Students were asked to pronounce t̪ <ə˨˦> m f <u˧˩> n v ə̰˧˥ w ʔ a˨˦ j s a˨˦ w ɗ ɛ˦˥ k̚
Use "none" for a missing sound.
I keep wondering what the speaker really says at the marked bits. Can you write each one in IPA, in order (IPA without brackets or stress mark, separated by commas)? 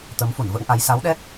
ə˨˦, u˧˩